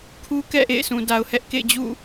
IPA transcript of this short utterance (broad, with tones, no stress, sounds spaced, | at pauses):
kʰ u˦ k ɛ̰˦˨ ʔ ḛ˦˨ ɪ̯ s ũ˨ d a˨ ʊ̯ h ɛ˦ ʔ k ḛ˦˨ ɪ̯ d͡ʑ ṵ˦˨